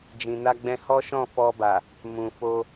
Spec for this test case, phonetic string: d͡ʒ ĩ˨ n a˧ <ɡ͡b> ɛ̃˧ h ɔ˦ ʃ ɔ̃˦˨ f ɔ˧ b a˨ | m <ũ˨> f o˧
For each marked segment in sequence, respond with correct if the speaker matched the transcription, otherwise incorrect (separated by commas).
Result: correct, correct